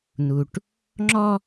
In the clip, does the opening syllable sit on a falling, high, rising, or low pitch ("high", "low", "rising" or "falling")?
low